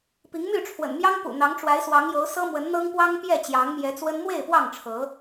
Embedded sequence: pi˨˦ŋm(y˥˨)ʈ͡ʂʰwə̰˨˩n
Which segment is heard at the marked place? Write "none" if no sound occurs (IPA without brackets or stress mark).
y˥˨